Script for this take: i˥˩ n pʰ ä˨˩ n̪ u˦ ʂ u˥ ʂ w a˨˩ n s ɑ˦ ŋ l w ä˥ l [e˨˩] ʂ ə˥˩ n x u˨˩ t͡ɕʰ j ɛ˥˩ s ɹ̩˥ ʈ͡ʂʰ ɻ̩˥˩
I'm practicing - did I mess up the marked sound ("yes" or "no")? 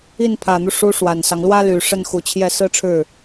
yes